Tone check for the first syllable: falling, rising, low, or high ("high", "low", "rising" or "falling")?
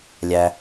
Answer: low